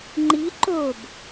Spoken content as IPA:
ŋ͡ǃ i ǃ o b

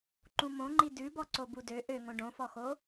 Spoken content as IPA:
ǃ ũ m õ ŋ͡ǃ i d ʉ b ɔ ǀ o b u d ø ʔ ø ŋ õ ɖ õ f ɔ x o

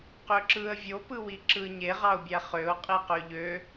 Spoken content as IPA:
q ø ǁ ɯ ə̯ vʲ o p ɯ w i ǁ ɯ ɲ e ʁ ɑ ʊ̯ bʲ æ χ ø ʊ̯ qʼ i q ø ʎ ø

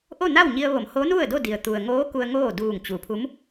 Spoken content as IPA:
ʔ o˥˨ n a˥˨ w ɲ i˧ ə̯ ʋ o˩˧ m h o˧˥ n u˥˨ ə̯ d o˥˨ d i˩ ə̯ t̪ u˩ ə̯ ŋ oː˧˥ k u˧ ə̯ ŋ oː˥˨ d uː˧˩ ŋ t͡ɕ u˩˧ pʰ u˧˥ m

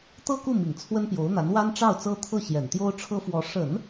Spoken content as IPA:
t̪ ɤ˥˧ k u˥˩ m i˨˩ ŋ t͡sʰ w ə˥ n p j o˧˥ ʊ̯ n̪ a˧˥ n w a˥ n ʈ͡ʂ ɑ˥˩ ʊ̯ t͡s ɤ˥ t̪ʰ ɤ˥˩ ɕ j ɛ˨˩ n t̪ j o˥ ʊ̯ ʈ͡ʂʰ ɤ˥ f w ɔ˧˥ ʂ ə˨˩˦ n

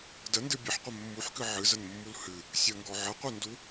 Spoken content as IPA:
d ə n d ɨ bʲ ɨ ħ qʷ ə mː u ħ k ɨ ʕ ɨ z ə n mː u l h ɨ | sʲ ə ŋ ɡ ɔ ʕ ə qʷ ɨ n d u

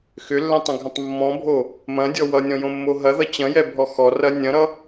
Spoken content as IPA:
x ʏ lː ɛ̃ tˤ ɐ̃ ɡʱ ɐ̃ tˤ mː ɔ̃ bʱ o | m ɐ̃ dʲ ɔ w ʌ nʲ ɔ̃ j õ mː o ɦ ɐ ð ʌ t͡ɕ ɐ̃ j ɛ bʱ ɔ x ɔ r ɐ nʲ ɐ̃ ɾ ʌ

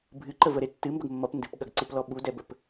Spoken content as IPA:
bʱ ɨ ǃ ə v ə ɾ e tː ɨ m b ə ɡ mː ʌ p n d ɨ p ɠ ɐ ɡ ǀ ɨ p l ɔ ɓ u d ɛ b ə p

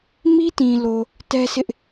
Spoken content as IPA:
m i˦ t ĩ˨ l o˨ | t ɛ˦ s ɪ˦ ʔ

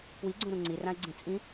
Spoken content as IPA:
p w i ɡ͡ǀ ũ ɾ ũ ŋ͡ǀ i r ã e̯ ɡ͡ǀ ĩ t͡sʼ ĩ

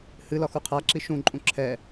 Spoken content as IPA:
h ɨ l ɒ x u qʰ a ǁ i ʃ ũ ǃʼ ũ ǁʰ ɛ

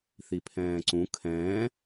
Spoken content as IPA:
θ i pʰ ɛ̃ː ǀ ũ kʰ ɛ̃ː

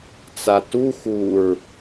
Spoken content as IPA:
t͡s a t u x u ɹ

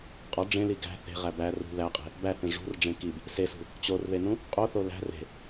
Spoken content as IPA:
qʼ ɒ ɖ͡ʐ ẽ l i ɡ æ̤ θ e̤ ʁ æ b æ r ṳ ð æ qʼ e̤ | b æ θ ẽ ʐ ṳ r ɖ͡ʐ ẽ k i b | s e s ṳ | t͡ɕ o r ð e n ũ | qʼ o θ o l æ̤ r e̤

